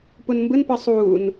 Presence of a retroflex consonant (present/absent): absent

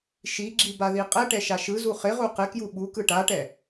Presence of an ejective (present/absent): present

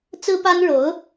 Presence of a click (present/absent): absent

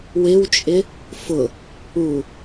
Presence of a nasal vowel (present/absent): absent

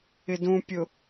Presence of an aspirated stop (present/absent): absent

